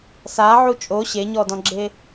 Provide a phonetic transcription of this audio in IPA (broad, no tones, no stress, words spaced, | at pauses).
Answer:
saʕu t͡ʃʼo ɕeɲɔdɔ̃ɡ͡ǁe